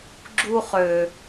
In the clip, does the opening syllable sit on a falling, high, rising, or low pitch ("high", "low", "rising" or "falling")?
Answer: high